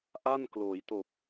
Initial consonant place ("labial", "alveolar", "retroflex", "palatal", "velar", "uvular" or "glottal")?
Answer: glottal